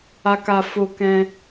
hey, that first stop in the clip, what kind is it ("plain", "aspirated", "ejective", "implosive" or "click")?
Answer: plain